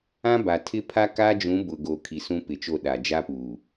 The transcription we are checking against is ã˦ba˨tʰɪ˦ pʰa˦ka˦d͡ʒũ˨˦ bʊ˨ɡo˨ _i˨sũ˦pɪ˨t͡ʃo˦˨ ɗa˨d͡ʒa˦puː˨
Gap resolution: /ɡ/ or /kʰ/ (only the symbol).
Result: kʰ